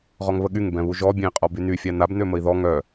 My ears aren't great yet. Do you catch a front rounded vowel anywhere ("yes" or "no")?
yes